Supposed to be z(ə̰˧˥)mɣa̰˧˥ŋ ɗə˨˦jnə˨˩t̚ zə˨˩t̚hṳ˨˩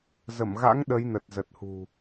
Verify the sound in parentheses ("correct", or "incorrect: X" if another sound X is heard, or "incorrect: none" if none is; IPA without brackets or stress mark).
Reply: incorrect: ə˧˩